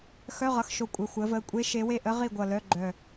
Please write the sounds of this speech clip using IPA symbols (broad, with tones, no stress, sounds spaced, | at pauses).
x œ˧˥˧ ʁ ʌ˩˧˩ x ʃ o˧˩ kʷʼ œ˩˧˩ xʷ əː˨˦ v əː˩˧˩ kʷʼ e˦˥ ʃ e˨˦ w e˥˨ ʔ ə˦˥ ʁ i˥˨ ɡʷ ʌ˧˩ l œ˧˥˧ ɡ͡ǃ œ˧˩